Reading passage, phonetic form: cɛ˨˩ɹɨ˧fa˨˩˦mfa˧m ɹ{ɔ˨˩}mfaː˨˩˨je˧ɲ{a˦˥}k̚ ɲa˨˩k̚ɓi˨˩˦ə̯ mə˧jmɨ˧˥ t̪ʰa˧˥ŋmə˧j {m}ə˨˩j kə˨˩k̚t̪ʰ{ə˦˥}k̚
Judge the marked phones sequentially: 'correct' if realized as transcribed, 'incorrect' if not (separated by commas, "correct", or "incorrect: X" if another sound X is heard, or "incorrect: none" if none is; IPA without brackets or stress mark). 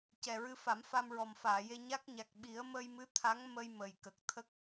correct, correct, correct, correct